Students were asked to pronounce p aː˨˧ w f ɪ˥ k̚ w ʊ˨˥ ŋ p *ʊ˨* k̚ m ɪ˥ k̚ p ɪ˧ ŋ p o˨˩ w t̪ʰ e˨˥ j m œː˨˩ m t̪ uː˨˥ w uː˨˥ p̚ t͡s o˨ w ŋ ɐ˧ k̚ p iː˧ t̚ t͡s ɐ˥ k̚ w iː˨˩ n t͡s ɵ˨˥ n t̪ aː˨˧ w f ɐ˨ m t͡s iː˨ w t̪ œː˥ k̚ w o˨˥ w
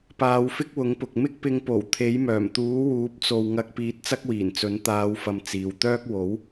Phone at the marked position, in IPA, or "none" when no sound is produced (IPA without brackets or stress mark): ʊ˨